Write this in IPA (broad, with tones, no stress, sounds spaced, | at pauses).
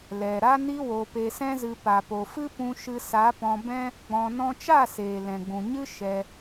l ɛ˨ ɾ a˦ n i˦ w o˧ p e˧ s ɛ̃˦ z ɨ˧ p a˨ p o˨ f ɨ˦ p ũ˧ ʃ ɨ˧ s a˨˦ p ɔ̃˧ b ɛ̃˦ | ɡ͡b ɔ̃˧ n ɔ̃˦ t͡ʃ a˦˨ s eː˨ l ɛ̃˨ ɡ͡b ũ˨ ɲ ɨ˦ ʃ ɛ˧